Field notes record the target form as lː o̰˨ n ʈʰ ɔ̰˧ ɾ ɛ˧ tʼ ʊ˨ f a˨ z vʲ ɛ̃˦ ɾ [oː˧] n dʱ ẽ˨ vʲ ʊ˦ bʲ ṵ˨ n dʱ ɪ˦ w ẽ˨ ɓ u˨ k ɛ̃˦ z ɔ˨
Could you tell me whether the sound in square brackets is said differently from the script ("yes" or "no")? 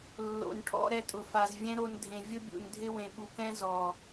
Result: yes